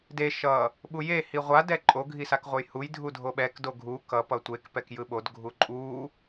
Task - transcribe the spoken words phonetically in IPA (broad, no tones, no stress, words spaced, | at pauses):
de ʃʌ | ɓuje hiʁʷa dɛǃʼo ɡʱisakʁʷʌjhuj dʱudʱoɓɛk doɡʱu kʌ pʌtʷek pɛkjɯɓod ɡʱuǃʼu